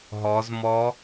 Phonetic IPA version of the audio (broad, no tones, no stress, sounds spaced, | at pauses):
ɦ ɔ z m ɔ